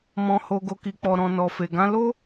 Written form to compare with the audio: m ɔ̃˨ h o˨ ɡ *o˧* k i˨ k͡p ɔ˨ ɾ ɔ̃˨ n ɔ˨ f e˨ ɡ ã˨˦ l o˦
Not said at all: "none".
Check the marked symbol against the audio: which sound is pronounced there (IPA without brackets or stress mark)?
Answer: o˨